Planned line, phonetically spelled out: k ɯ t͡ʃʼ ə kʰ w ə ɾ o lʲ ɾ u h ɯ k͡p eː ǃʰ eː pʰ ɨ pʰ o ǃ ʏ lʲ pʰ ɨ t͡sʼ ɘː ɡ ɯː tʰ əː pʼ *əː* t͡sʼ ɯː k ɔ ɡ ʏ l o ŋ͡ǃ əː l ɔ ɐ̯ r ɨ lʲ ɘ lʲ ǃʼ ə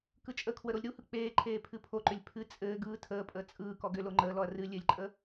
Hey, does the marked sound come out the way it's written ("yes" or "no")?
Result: yes